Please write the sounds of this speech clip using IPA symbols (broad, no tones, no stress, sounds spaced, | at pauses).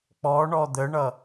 k͡p ɔ ɳ ɔ d̪ ə ɳ ʌ